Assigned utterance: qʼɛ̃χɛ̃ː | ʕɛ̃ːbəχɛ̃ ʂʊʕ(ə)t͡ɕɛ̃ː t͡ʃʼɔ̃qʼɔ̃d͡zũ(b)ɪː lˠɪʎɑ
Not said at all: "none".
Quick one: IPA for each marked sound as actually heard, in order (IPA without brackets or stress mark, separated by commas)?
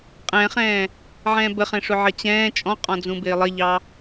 ə, b